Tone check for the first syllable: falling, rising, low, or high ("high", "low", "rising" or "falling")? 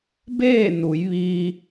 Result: falling